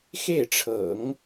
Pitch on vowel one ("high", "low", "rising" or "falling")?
falling